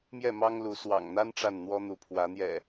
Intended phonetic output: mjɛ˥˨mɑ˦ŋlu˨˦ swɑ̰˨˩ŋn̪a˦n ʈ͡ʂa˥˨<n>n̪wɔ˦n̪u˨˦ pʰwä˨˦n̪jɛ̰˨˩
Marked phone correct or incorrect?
correct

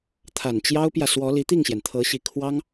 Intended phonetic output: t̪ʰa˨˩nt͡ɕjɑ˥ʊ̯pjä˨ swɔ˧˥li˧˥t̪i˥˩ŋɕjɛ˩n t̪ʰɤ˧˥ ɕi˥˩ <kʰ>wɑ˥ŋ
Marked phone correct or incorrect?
correct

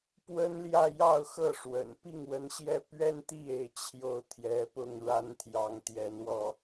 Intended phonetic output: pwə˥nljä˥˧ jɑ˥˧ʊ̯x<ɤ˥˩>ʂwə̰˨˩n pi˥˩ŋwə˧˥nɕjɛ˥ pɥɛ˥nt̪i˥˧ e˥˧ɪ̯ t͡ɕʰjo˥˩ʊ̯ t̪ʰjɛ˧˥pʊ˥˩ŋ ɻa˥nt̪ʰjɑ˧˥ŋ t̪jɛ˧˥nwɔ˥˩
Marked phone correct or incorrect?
correct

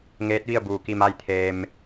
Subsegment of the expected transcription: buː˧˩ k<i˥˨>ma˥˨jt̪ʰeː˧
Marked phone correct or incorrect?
correct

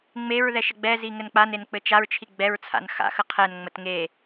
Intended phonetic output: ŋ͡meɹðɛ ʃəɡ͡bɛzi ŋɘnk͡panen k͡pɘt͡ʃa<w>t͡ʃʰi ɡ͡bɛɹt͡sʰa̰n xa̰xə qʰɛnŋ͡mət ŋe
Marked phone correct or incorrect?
incorrect: ɹ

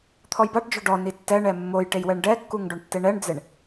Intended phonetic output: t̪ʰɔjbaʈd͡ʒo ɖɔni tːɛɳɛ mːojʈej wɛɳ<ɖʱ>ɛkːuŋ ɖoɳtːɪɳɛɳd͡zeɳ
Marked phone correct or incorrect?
incorrect: ɖ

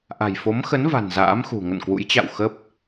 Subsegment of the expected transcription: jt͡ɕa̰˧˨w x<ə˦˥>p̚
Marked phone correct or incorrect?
correct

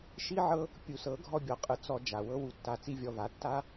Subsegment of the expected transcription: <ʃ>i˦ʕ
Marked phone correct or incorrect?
correct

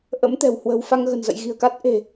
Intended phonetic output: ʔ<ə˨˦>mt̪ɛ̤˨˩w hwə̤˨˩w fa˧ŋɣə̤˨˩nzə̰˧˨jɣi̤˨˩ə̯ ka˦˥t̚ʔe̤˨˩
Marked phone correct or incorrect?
incorrect: ə̰˧˥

